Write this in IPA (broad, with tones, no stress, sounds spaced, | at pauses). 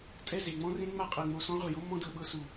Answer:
tʼ ɛ˦˨ z e˨ ŋ͡m ɔ̃˦ r ẽ˦ ŋ͡m a˦ qʼ ɤ˨ ŋ͡m o˨ s ɔ̃˦ ʁʷ e˨ j o˦ mː ɔ̃˦ d ɤ˨ ɓ ɤ˦ s u˨